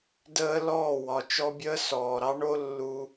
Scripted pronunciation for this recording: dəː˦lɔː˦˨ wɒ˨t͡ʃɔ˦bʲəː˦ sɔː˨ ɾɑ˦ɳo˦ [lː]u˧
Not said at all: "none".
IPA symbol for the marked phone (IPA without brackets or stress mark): lː